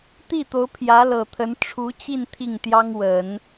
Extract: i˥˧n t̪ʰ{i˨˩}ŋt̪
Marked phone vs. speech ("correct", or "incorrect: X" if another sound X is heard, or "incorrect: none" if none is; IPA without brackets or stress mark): incorrect: i˥˩